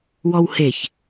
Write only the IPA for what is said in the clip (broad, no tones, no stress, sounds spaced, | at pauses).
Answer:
w ɔ w h e ç